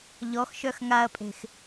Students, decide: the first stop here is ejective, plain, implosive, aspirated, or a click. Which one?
ejective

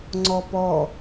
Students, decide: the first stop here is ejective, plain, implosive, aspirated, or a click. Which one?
click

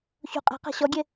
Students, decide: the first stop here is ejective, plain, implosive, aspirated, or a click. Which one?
ejective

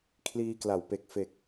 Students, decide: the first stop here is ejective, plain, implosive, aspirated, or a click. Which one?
aspirated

